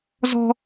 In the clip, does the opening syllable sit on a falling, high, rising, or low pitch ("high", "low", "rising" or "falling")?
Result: high